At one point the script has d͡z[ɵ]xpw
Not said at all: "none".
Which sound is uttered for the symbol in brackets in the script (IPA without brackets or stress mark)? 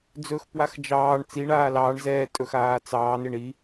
ɵ